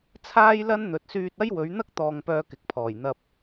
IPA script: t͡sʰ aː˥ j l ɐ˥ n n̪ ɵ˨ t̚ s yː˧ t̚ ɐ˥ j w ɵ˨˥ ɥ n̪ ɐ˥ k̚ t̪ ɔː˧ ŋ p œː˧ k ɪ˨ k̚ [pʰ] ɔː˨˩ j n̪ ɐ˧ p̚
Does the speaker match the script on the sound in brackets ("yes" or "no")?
yes